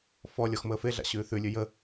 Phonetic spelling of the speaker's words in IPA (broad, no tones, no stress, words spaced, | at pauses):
fɔ lʲɔxməːfeɮa̰ ɕʉːθʉlʲʉ jə